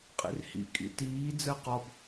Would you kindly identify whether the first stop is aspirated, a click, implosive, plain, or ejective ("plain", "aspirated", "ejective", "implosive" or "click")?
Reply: ejective